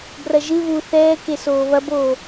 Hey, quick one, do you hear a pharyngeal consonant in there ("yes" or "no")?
no